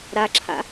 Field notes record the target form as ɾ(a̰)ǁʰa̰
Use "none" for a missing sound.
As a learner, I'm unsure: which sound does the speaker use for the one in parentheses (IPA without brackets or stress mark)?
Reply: a